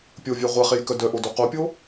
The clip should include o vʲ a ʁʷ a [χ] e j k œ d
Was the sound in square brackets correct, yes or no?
yes